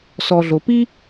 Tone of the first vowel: low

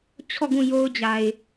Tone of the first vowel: falling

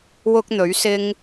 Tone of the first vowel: high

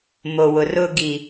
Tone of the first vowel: low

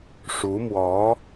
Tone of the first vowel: rising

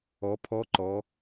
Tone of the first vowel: rising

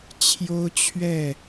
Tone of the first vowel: high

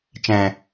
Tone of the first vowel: low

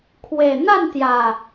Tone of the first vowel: low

